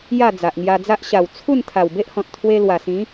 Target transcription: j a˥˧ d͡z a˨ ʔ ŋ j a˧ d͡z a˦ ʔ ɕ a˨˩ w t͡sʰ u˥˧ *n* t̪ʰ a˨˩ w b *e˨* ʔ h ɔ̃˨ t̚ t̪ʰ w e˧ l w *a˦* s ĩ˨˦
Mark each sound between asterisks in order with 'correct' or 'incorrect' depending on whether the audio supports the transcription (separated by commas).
correct, incorrect, incorrect